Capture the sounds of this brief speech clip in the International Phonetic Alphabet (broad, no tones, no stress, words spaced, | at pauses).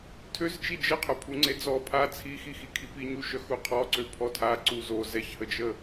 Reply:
tʰøzt͡ʃi d͡ʒəqʰœpʰu ŋ͡ǀed͡zɔ pʰa t͡sʰixixi kʰipiɲuʃœ xuqʰɔǀø pʰɔtʰa ǀuzo zɛçhəd͡ʒə